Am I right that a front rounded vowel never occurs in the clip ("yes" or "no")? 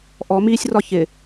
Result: yes